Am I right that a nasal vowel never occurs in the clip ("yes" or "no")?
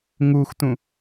no